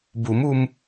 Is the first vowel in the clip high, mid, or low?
high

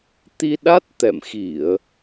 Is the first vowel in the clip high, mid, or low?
high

